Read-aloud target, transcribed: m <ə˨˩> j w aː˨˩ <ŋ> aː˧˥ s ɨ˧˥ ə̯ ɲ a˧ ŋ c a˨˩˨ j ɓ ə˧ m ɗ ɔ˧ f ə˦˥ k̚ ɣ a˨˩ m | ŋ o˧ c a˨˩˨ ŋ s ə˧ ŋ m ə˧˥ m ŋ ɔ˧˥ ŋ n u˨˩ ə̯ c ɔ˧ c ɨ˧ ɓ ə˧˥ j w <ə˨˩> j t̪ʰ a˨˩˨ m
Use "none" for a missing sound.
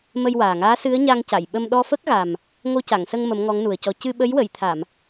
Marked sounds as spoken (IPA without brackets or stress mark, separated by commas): ə˧, ŋ, ə˨˩˨